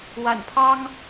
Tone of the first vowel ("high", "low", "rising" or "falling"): low